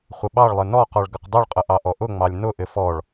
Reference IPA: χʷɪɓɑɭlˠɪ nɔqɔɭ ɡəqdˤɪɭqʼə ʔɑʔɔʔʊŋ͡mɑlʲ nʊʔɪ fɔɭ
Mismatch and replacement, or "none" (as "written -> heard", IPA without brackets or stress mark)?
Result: none